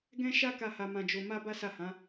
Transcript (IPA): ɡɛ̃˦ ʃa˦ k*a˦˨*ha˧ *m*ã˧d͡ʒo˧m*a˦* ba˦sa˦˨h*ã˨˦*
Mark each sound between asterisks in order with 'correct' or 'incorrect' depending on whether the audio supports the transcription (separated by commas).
correct, correct, correct, correct